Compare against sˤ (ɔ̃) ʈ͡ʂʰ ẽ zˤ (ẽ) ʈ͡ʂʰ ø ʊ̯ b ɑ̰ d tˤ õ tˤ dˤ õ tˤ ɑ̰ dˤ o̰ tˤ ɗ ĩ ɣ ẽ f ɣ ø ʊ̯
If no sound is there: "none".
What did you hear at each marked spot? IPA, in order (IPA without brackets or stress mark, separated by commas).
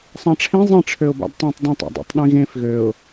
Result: ɑ̃, ĩ